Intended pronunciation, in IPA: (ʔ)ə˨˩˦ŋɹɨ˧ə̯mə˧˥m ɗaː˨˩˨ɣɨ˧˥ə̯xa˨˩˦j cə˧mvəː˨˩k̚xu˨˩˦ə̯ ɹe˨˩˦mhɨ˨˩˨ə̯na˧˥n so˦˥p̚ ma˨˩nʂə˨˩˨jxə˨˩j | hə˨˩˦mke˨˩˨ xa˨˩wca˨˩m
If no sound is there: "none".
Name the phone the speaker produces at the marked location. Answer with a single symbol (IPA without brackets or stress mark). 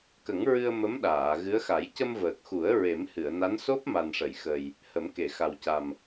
k